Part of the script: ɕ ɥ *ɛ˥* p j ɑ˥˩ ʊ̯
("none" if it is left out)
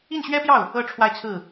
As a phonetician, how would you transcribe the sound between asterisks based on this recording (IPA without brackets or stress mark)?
ɛ˥